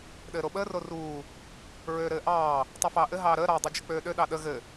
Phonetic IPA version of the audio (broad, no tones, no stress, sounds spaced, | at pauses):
ɗ ɘː ɾ o ɓ əː r o r uː | ɹ øː ɾ ɘː ʔ ɑː | tˤ u f ɑː ʔ ɘ ɦ ɑː ɾ əː ɾ ɑ dˤ o d͡ʒ ə k͡p øː ɗ ø ɗ ɑ ɗ ə ɣ ɘ